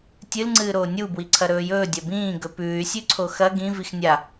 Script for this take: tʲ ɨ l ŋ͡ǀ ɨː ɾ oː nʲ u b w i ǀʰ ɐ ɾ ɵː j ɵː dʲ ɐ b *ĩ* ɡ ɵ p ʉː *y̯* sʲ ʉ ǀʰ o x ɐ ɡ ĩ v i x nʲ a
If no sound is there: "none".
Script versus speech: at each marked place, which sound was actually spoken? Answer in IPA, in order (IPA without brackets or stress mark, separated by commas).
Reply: ĩː, y̯